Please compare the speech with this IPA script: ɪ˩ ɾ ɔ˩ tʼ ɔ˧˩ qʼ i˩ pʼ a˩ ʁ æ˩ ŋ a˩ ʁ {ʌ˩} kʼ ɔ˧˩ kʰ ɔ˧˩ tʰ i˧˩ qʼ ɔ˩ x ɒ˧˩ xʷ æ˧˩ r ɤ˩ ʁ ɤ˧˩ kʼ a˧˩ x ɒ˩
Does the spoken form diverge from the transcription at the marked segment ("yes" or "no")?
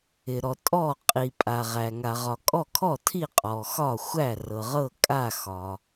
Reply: yes